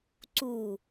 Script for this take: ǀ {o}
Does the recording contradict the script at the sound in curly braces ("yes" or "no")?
yes